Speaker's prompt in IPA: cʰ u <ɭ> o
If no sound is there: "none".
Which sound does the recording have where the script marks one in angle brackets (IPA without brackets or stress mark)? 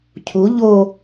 ʎ